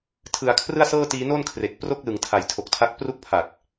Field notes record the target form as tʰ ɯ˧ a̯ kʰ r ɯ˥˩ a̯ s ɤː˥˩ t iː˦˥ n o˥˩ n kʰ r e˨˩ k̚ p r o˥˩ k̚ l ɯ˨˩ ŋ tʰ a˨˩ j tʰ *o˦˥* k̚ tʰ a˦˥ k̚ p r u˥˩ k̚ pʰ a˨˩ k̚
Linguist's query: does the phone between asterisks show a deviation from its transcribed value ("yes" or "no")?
yes